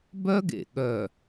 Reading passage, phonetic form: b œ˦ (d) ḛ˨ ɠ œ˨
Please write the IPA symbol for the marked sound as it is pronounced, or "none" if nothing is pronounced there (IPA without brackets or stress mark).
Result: ɡ